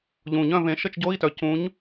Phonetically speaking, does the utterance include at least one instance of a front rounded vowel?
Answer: yes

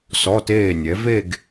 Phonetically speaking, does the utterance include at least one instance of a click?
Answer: no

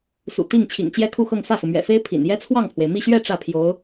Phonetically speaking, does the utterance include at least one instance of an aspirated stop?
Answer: yes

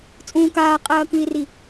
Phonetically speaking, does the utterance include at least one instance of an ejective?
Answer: yes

